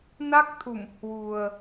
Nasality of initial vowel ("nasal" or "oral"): oral